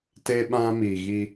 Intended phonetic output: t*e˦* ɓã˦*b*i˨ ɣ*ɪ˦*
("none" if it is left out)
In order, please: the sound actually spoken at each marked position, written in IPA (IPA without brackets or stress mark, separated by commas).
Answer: e˦, m, i˦